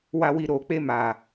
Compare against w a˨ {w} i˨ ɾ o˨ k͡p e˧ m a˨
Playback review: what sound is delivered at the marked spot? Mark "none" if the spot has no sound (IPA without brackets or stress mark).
w